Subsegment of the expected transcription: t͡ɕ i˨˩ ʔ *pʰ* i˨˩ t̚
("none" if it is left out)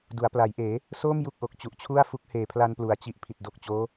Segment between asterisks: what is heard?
pʰ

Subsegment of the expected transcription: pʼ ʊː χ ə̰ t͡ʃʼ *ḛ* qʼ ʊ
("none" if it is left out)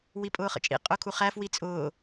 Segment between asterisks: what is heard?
ḭ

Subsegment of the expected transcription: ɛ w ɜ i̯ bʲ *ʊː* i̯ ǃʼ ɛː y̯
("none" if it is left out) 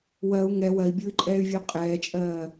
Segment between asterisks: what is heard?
ʊː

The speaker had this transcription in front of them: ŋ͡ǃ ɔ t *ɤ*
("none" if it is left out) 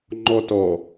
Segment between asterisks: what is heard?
ɔ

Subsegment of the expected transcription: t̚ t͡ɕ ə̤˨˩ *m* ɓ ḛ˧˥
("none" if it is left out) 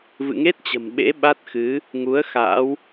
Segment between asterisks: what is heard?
m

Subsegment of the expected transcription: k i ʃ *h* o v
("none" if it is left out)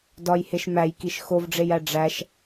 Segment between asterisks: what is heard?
x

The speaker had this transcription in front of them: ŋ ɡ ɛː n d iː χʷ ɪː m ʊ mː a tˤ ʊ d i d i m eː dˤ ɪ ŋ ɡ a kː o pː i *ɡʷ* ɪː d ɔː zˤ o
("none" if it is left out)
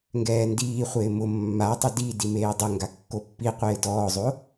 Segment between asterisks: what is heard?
qʷ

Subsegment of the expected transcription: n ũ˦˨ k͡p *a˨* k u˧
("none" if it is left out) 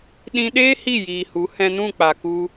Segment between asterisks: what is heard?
a˨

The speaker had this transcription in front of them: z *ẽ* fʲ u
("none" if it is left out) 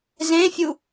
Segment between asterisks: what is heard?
ẽ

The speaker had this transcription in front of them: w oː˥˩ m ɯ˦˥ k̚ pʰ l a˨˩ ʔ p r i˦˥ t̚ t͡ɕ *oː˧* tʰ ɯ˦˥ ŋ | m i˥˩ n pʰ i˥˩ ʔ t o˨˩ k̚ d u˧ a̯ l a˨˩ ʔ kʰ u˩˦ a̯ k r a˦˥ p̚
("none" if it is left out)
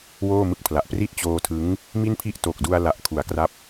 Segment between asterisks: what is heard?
oː˧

